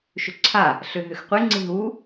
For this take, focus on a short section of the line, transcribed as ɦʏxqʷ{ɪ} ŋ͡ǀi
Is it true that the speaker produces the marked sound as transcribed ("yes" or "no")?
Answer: yes